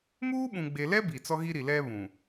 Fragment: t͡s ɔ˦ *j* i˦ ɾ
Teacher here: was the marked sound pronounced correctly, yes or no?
no